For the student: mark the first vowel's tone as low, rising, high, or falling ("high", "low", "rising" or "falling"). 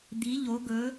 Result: rising